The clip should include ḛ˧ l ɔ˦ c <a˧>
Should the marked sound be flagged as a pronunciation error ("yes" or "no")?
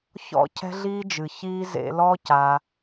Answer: no